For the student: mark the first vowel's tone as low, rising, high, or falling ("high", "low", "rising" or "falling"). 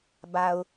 low